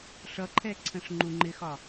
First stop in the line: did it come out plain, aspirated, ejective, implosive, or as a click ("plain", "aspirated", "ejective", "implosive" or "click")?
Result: click